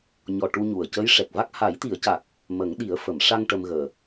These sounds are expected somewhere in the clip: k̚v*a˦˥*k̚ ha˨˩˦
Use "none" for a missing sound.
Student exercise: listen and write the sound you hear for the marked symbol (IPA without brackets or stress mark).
a˦˥